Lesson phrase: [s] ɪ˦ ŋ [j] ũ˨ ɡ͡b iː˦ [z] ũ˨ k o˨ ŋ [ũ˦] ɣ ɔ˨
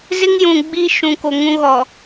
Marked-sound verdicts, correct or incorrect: incorrect, correct, incorrect, correct

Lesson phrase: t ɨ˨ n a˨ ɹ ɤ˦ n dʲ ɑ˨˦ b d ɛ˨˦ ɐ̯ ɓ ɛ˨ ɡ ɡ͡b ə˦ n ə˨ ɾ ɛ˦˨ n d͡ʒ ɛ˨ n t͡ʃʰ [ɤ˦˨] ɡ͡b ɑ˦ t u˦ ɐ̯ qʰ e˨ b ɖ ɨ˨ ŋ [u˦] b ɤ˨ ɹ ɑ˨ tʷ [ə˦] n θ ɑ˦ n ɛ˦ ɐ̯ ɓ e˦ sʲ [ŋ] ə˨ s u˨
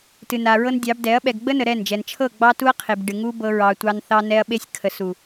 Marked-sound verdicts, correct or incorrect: correct, correct, incorrect, incorrect

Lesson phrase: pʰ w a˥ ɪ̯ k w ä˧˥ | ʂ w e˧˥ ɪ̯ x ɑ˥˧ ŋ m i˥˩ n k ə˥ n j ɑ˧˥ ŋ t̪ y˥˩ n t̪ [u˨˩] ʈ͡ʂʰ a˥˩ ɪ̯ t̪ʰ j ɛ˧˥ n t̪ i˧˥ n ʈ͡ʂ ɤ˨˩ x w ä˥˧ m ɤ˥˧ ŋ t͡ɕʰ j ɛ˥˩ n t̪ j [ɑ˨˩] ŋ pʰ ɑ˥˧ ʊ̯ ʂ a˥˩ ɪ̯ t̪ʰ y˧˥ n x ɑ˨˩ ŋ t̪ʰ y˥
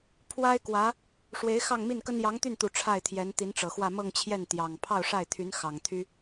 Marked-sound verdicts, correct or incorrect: correct, correct

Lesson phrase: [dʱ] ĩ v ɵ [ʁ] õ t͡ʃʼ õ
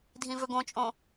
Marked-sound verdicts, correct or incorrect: correct, incorrect

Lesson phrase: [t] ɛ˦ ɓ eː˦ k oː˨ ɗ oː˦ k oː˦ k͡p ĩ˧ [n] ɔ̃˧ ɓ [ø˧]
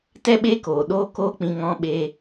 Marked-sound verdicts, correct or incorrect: correct, incorrect, incorrect

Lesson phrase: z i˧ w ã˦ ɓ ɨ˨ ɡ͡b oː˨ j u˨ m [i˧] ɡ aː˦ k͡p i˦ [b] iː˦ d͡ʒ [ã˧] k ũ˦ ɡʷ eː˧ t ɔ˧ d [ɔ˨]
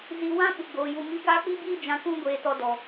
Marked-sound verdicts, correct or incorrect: correct, correct, correct, correct

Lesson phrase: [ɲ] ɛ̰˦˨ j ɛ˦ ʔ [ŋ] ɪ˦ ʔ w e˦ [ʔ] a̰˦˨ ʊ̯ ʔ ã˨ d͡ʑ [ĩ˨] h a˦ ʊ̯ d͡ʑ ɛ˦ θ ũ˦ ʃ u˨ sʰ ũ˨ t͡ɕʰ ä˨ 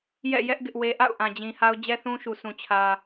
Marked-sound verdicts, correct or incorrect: incorrect, incorrect, correct, correct

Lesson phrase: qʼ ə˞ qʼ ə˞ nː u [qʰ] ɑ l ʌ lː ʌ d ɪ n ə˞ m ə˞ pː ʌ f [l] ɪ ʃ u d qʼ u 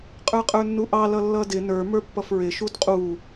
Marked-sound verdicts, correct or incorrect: incorrect, incorrect

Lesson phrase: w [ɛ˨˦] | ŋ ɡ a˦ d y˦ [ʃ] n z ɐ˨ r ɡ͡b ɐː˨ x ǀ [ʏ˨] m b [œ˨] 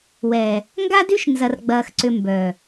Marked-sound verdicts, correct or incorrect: incorrect, correct, correct, correct

